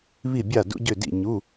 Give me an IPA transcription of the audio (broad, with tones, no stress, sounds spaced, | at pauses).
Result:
β i˥˨ bʲ a˥˨ d ṵ˧˥˧ ɟ ø˥˨ d ḭ˥˨ ɲ u˧˥˧